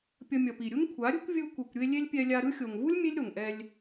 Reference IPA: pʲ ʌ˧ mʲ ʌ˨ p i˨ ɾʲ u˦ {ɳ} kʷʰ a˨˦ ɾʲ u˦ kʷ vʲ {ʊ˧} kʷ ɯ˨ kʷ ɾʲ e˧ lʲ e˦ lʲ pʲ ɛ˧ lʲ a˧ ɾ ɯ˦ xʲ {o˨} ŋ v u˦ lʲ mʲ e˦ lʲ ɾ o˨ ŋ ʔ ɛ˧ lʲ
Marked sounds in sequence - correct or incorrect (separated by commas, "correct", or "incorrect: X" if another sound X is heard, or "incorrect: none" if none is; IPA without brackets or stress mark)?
incorrect: ŋ, incorrect: ɯ˧, correct